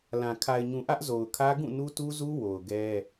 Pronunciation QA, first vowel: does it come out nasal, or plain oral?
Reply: nasal